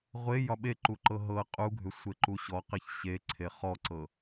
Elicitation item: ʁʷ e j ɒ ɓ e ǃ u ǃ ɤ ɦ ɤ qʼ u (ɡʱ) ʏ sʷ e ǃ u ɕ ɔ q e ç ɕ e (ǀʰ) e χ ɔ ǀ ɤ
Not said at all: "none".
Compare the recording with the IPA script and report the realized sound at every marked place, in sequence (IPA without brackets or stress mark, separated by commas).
ɡʱ, ǀʰ